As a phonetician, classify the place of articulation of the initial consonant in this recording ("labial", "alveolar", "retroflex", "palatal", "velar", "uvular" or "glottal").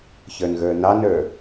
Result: palatal